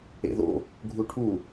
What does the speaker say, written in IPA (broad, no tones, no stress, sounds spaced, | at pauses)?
ḛ ð o̰ | ɡʱ u ʈʰ u